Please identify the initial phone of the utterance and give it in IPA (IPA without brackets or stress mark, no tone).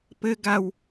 p